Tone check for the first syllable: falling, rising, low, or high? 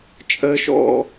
high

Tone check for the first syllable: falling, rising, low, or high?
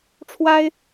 high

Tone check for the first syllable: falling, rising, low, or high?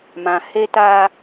low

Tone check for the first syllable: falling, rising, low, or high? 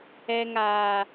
low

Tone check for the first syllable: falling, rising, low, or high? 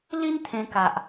high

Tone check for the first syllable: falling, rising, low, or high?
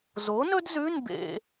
rising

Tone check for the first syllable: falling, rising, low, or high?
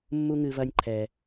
low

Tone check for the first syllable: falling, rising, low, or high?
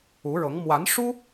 rising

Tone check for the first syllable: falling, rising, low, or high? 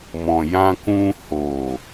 low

